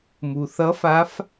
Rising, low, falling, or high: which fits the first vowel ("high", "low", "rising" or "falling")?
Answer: low